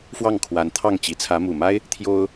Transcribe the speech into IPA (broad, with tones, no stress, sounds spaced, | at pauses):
f w ɑ˥˩ ŋ kʰ w a˧˥ n t̪ʰ ɑ˥˩ ŋ t͡ɕ i˧˥ t͡sʰ ä˧˥ m u˨˩ m a˥ ɪ̯ | t̪ʰ j o˥ ʊ̯